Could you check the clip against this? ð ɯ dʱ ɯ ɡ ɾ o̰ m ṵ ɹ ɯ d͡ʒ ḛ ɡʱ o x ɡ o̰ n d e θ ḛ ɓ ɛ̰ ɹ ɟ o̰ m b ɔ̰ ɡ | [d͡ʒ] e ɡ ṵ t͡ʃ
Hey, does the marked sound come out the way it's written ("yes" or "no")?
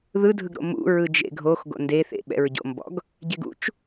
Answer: no